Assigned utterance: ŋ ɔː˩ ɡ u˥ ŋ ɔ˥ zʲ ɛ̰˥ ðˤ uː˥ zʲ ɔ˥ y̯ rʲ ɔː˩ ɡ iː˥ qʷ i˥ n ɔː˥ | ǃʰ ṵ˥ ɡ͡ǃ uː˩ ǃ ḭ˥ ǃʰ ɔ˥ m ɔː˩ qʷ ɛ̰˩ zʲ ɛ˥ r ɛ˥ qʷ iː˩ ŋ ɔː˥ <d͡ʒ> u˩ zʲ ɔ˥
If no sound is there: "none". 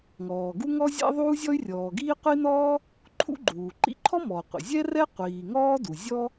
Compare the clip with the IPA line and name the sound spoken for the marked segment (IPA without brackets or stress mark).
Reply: d